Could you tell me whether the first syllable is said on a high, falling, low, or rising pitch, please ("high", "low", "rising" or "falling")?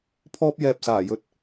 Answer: high